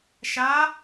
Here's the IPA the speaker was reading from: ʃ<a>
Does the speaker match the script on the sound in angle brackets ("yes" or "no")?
yes